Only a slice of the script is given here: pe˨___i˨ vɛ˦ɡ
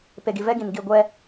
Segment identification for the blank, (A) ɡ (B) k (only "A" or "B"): A